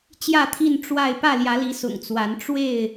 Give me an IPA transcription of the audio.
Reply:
t͡ɕ j ä˥˨ t̪ʰ i˥˨ n ʈ͡ʂ w a˥˨ ɪ̯ p ä˥˨ l j ä˨˦ l i˨˦ s ʊ̰˨˩ ŋ t͡s w a˨˦ n ʈ͡ʂ w e˥˨ ɪ̯

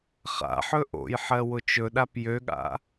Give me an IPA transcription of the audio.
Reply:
χ a̰ ħ ɵ ʔ o̰ j ħ ɜ w ʊ t͡ʃ ɵ ɗ a p j ø ɠ a̰

